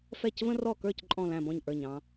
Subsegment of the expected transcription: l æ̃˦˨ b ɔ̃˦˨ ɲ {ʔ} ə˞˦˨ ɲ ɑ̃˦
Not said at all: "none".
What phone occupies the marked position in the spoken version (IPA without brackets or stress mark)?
ʔ